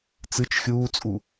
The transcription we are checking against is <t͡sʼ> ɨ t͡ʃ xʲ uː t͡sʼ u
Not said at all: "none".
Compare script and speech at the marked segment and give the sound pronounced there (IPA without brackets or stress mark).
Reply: t͡s